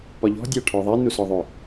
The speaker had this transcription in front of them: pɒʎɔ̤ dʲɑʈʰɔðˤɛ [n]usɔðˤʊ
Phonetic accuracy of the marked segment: correct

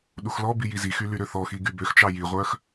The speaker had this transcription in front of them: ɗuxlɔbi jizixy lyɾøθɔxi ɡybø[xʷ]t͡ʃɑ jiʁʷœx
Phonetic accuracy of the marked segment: incorrect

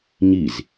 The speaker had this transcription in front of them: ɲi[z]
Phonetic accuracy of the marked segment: correct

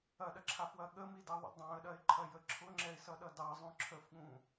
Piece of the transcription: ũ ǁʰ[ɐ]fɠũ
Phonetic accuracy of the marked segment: incorrect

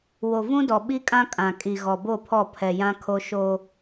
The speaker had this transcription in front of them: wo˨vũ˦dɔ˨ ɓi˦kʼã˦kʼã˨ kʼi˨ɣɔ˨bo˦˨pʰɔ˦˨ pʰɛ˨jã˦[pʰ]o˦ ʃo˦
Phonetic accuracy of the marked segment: incorrect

